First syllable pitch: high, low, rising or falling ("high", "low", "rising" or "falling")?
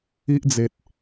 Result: high